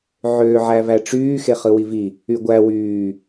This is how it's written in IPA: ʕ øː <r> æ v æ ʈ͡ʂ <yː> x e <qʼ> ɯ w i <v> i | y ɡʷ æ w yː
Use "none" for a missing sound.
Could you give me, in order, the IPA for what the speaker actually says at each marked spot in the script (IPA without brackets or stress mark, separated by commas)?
ʕ, yː, χ, v